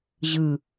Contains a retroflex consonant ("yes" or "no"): no